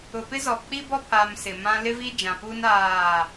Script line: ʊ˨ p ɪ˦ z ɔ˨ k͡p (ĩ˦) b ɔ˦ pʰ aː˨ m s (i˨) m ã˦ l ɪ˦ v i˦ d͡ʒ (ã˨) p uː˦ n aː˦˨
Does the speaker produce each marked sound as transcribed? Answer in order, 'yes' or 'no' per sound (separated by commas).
no, no, yes